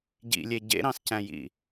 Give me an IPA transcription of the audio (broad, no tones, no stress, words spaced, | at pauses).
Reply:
ɟḭlʲe ɟḛɾɑ̃scæ̃jḭ